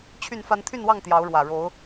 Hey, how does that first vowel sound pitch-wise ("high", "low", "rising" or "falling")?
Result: falling